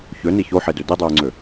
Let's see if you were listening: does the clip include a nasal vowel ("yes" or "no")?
no